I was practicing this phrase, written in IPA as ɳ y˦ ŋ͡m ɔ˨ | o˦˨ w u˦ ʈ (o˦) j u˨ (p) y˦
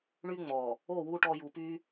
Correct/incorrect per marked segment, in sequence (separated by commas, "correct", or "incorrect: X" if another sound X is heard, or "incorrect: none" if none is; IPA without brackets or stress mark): incorrect: ɔ˦, correct